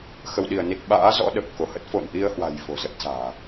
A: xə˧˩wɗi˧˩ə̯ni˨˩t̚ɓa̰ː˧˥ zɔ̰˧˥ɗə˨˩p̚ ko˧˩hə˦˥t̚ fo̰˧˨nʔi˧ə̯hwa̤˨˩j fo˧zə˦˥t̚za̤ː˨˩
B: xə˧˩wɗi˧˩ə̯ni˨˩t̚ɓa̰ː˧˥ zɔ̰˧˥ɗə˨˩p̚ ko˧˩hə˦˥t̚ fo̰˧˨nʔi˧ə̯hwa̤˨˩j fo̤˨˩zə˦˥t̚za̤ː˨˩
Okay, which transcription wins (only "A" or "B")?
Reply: B